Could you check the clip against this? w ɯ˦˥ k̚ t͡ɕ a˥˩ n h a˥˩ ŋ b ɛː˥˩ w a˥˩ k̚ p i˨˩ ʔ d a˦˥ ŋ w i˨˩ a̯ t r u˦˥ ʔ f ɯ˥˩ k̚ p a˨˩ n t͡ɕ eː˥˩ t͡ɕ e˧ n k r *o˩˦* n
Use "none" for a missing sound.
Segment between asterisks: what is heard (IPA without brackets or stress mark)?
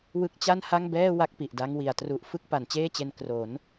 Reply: o˩˦